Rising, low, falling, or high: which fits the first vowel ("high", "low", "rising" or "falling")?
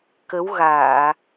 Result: rising